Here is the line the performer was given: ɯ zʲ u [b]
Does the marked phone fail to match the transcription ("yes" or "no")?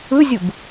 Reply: no